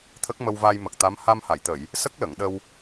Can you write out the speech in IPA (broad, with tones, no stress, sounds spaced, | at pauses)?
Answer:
t̪ʰ ə˦˥ k̚ m ə˧ w v a˧ j m ə˨˩ k̚ t̪ a˧˥ m h a˧ m h a˨˩˨ j t̪ ə˨˩˨ j | s ə˦˥ k̚ l ə˨˩˨ ŋ ɗ ə˧ w